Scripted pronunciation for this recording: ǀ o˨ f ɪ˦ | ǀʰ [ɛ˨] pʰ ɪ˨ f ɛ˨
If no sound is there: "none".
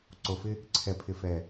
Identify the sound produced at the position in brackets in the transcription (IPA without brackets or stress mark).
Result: ɛ˨